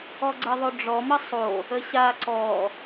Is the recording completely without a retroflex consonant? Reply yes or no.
no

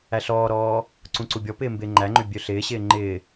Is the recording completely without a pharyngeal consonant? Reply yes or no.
yes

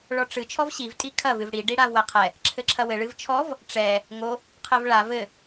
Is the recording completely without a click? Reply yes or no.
no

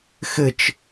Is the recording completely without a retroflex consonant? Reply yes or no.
yes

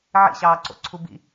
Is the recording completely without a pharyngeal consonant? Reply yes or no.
no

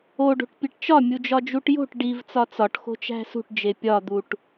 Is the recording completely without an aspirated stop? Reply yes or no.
yes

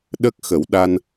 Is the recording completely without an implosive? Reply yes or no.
no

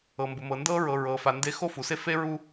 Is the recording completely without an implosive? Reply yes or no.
yes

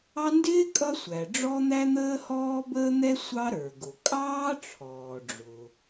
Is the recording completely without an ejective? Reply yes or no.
no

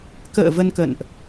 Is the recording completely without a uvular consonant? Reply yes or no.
yes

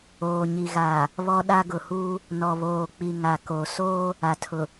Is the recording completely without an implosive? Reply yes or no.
no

